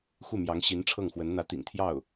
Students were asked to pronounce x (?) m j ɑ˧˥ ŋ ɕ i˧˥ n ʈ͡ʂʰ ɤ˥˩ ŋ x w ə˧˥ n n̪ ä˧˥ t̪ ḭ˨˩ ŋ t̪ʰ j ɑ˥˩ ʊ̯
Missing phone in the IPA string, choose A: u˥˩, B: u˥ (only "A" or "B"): A